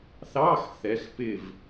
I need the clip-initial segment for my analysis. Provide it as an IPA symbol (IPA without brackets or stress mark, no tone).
θ